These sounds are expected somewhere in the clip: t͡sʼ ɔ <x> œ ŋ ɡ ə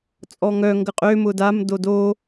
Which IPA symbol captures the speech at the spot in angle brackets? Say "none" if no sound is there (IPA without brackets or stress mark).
ŋ